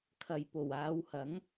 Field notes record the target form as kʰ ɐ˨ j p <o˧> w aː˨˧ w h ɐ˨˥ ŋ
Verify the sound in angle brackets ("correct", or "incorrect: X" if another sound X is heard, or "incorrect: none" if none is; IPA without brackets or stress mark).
incorrect: o˨˩